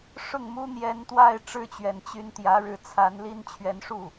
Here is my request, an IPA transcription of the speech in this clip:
ʂ ʊ˥˩ ŋ m u˥ n̪ j ɛ˧˥ n t̪ w a˥˧ ɪ̯ ʈ͡ʂ ɻ̩˥˩ t͡ɕ ɥ ɛ˨˩ n t͡ɕ y˧˥ n t̪ j ä˧˥ ɻ ɻ̩˧˥ t͡sʰ a˧˥ n l i˥ n t͡ɕʰ ɥ ɛ˧˥ n ʂ u˥˩

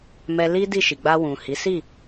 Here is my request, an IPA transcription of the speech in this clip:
m ɛ˧ l i˦ d i˦˨ ʃ i˨ ɡ͡b a˧ w ũ˨ h i˨˦ s i˦˨

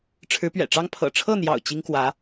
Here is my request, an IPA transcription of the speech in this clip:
ʈ͡ʂʰ ɻ̩˧˥ p ɥ ɛ̰˨˩ ʈ͡ʂ ɑ˥ ŋ pʰ ɤ̰˨˩ ʈ͡ʂʰ ɤ˥˩ n̪ j ɑ̰˨˩ ʊ̯ t͡ɕ i˥ ŋ k w ä˧˥

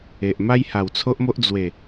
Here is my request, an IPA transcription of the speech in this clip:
e˨ ʔ m a˦ j h a˨˩ w t͡sʰ o˦ ʔ m o˦ ʔ d͡z w e˨˩

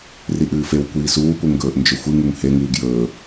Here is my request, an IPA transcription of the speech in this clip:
r i ʔ ɨː f e w kʷ iː s uː p u ŋ ɡ ɵː ʔ n d͡ʒ ɵ xʷ ɨ ŋ u ŋ h e ŋ ɨː ɡ j ɵː

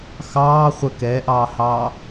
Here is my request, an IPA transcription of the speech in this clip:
x ɑː χʷ ə k ɛ ʔ ɑː h ɑː

